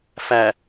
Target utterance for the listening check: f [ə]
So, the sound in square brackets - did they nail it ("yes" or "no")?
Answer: no